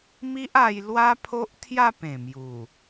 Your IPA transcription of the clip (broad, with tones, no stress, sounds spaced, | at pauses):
m i˦ ʔ a˧ j l w a˦ pʰ o˦ ʔ t̪ʰ j a˥˧ p ẽ˨˩ m j u˨˩